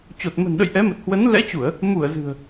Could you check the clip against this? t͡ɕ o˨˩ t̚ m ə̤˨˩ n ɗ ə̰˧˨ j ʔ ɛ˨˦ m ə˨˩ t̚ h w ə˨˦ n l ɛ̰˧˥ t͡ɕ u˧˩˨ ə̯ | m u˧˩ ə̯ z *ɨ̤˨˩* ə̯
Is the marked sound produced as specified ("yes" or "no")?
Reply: yes